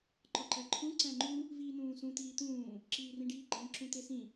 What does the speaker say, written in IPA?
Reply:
ǃ ɒ ǃ æ ǃʰ ũ ǀ æ̃ ŋ͡ǃ u | v iː n̪ ũː s ũ t̪ iː t̪ ũː | ǁ iː r ĩ ɖ iː ɡ͡ǃ æ̃ ǁ ũ t̪ e s ĩ

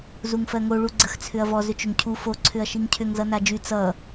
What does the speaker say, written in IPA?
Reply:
z u ŋ f ɜ ŋ o ɭ u ɡ͡ǀ ə x t͡sʰ ʏ ɐ̯ v ɔ z ʏ t͡ʃ ʏ ŋ cʰ u f o ǀʰ ʏ ɐ̯ ʃ i ŋ cʰ ʏ ŋ z ʌ n a d͡ʒ y t͡s ʌ

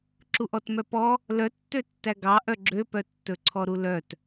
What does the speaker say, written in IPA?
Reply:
ǁ u ʔ ɔ t m œ p ɔ | l œ tː ø tː æ ɡ ɑ ʔ œ ɡ͡ǁ ø p œ tː ɵ ǀʰ ɔ ɾ u l œ t

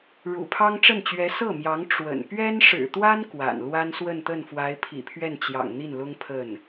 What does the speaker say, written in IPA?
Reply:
ɻ ṵ˨˩ pʰ ɑ˥ ŋ ʈ͡ʂ ə˥˩ n t͡ɕ ɥ ɛ˧˥ s ɤ˥˩ m j ɑ˧˥ ŋ ʈ͡ʂ w ə̰˨˩ n p ɥ ɛ˥ n ʂ ɻ̩˨˩ t̪ w a˥ n k w a̰˨˩ n l w a˥ n s w ə˥˧ n t̪ ə˥˩ n f w a˧˥ ɪ̯ pʰ ḭ˨˩ pʰ ɥ ɛ˥˩ n t͡ɕ j ɑ̰˨˩ ŋ n̪ i˥˩ n l ʊ˥ ŋ pʰ ə˥˩ n

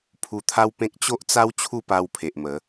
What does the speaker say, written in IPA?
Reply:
pʰ u˧ t̪ʰ a˦ w p ẽ˦ k̚ t͡ɕ o˦ ʔ t͡s a˦ w t͡ɕʰ u˥˧ p a˧ w pʰ e˨ ʔ m ə˨˦

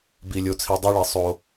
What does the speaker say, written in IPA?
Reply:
b i˨ lʲ o˨ t͡sʰ i˨ dˤ ɛ˦ ɭ i˨ sˤ o˨

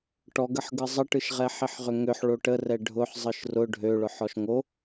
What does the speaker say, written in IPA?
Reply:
ʈ ɔ ɡ ə ħ ɡ ɯ zˤ ə ʈ ɯ ʃ ʁ ɛ ħ i ħ ʁ ʏ ŋ ʏ ħ ɭ o ʈ ə r ɛ ɖʱ ʊ ħ zˤ ɯ ʃ r ʊ ɖʱ ø ɭ ʊ ħ ɔ ʃ ŋ o

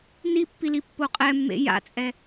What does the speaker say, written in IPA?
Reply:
n i pː i l i pː o qʼ ɛ mː ḛ j a̰ t͡sʼ ɛ

